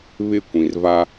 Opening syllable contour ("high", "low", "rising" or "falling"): falling